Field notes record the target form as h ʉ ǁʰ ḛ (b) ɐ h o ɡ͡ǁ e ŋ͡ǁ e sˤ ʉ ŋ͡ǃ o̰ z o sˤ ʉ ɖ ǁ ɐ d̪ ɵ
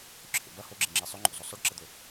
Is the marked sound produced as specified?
yes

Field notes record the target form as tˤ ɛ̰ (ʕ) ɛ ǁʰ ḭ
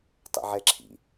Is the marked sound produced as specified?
yes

